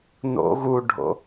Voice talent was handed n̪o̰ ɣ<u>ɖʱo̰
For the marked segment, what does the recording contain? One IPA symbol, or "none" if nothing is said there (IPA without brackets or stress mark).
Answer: u